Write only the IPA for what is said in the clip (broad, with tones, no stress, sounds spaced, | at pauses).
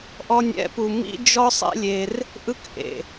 ʔ ɔ˧ nʲ ɛ̰˨˦ p u˨ m ḭ˦ d͡ʒ ɔ˦ sˤ ɛ̰˦ lʲ e˧ r | ʔ ɯ˦ k ʔ ḛ˨